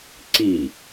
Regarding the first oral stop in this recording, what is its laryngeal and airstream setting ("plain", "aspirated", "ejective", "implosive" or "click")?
click